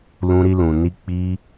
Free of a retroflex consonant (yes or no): yes